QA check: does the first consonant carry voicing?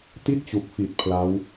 no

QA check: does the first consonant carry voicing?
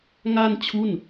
yes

